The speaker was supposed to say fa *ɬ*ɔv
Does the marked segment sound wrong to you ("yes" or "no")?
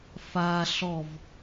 no